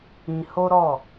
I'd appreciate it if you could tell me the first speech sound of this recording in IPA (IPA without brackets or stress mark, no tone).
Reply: ĩ